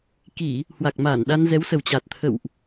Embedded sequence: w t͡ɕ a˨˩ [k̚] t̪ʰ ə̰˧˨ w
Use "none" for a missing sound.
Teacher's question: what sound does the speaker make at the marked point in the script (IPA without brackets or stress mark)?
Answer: t̚